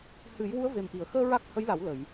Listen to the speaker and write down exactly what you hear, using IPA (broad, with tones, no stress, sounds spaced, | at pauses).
h ɨ˨˩˦ j w u˧˥ ə̯ v e˨˩ m ʔ i˨˩˨ ə̯ x əː˧ ɹ a˦˥ k̚ h ə˧˥ j l a˨˩˦ w l ə˨˩˨ j